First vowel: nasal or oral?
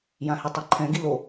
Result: nasal